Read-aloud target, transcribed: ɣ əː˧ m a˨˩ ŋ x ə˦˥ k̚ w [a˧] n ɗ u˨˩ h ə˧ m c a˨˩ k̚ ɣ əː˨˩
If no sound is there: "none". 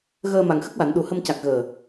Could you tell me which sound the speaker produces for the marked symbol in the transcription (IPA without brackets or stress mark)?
a˨˩˨